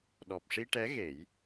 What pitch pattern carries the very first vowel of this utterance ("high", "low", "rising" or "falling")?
low